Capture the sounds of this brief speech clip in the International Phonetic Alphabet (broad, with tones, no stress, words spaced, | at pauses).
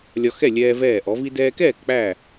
lʲɒ˧xɛ˥˩lʲɛː˧ vɛː˥˩ʔɔ˨˥ vi˧dɛː˧kɛː˥˩k k͡pæ˥˩